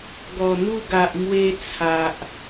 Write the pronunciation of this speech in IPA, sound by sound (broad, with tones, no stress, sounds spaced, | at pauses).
ɡ ɔ˨˩ n̪ u˥˧ ɡ a˨ ʔ m w e˧ t͡sʰ a˨ ʔ